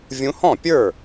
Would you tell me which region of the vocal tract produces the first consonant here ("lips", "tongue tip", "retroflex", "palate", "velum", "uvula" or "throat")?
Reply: lips